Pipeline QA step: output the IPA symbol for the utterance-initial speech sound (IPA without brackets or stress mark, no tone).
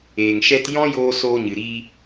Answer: eː